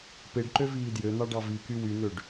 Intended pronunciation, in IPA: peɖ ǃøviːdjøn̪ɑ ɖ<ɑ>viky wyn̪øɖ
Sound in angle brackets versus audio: correct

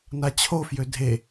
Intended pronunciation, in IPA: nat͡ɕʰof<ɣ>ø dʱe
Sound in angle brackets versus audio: incorrect: j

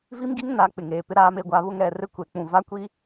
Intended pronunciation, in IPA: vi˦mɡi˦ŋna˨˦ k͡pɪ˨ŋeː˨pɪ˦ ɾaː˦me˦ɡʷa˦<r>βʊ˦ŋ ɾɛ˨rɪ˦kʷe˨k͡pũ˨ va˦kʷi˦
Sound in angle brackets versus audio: incorrect: none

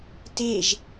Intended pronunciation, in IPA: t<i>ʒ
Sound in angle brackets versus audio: incorrect: e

